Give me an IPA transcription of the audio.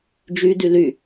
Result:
d͡ʒ y d y l y

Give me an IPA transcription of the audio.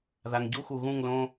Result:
ð a˨ ŋ ɟ u˦ x u˨ ɣ ũ˦˨ ŋ l õ˦

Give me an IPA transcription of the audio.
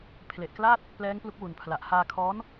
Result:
pʰ l e˨˩ ʔ k l aː˥˩ t̚ | p l ɛː˦˥ ŋ p l u˦˥ k̚ w u˨˩ n pʰ l a˨˩ ʔ h aː˧ kʰ ɔː˦˥ n

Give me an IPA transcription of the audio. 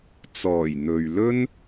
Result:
t͡s ɔː˨˩ j n̪ ɵ˨ ɥ l ɵ˥ n

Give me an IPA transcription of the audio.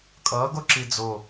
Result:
kʼ ʌː ɡ o ǁ i d͡z o

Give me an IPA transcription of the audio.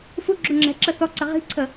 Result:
f u ɡ͡ǁ u ŋ͡ǁ ɛ̤ ǁ ə θ ɔ ǀ ə ʁ i̤ ǀʰ ə

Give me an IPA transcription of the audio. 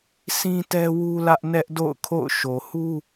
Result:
s ĩ˦ t ɛ˦ w u˦ l ä˦ ʔ n ɛ˦ ʔ d o̰˦˨ ʊ̯ kʰ o̰˦˨ ʊ̯ ʃ o˨ h u˦

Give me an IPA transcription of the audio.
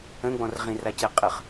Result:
ə̃ ɡ͡b ɔ̃ r ʁ ĩ r a c ɛ qʼ ə χ

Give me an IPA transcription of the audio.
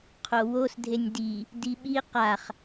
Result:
qʰ o w o s dʱ e nʲ d i | d i ɓ i q a χ

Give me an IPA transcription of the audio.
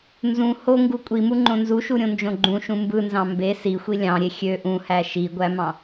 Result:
n z ũ h o ŋ ɡ u kʷʼ i m u ŋ͡ǃ õ n z u ʃ u ɾʲ õ n d͡ʒ õ ɡ͡ǃ ũ ʃ ũ m b ɯ n z ɑ̃ m b e s i xʷ i lʲ ɑ̃ ɾʲ e xʲ ø ʔ ũ h æ ʃ i ɡʷ æ m ɑ̃

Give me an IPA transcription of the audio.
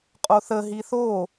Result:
qʼ o θ ə ɦ i θ o

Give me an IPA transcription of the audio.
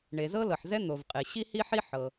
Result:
ɳ e˩ z ɤ˥ l ɤ˩ ħ z ɛ˥ n̪ o˩ v qʼ e˩ ɕ i˥ h i˥ ħ i˥ ħ ɤ˩

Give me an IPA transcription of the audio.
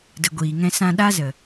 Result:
d ə˨ ɡʷ iː˨ ŋ ɛ̃˧ s ã˧ ɗ a˦ z ə˨

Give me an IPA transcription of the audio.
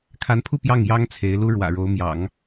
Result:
kʰ a˧˥ n pʰ u˥˧ p j ɑ˥˩ ŋ j ɑ˥ ŋ t͡sʰ e˧˥ ɪ̯ l u˥ ɻ w ä̰˨˩ ɻ o˧˥ ʊ̯ m j ɑ̰˨˩˦ ŋ

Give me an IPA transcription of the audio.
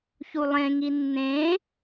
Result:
ç u lˠ ẽ ŋ i nː ẽ

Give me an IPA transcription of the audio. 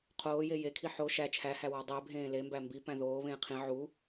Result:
qʰ oː j e j e kʰ i ħ o ʃ æ t͡ʃʰ æ h æ w ɒ dˤ e bʱ ẽː l e m b æ m b i p æ̃ ð oː β ẽː qʰ ĩ ʕ u

